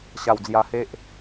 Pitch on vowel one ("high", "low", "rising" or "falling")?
low